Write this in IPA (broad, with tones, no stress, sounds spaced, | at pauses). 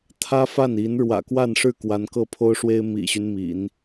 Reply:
t̪ʰ ä˥ f a˥˩ n i˧˥ n ɻ w ä̰˨˩ k w a˥˧ n ʂ ɻ̩˥˩ k w a˧˥ n k ɤ˥˩ pʰ o˥ ʊ̯ ʂ w e˥ ɪ̯ m ḭ˨˩ ɕ y˦ n m ḭ˨˩˦ n